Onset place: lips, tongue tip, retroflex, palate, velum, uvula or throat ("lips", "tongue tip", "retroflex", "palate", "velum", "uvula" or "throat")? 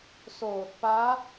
tongue tip